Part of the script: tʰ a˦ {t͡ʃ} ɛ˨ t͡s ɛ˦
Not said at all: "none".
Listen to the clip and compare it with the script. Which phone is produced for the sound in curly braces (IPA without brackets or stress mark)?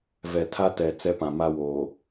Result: t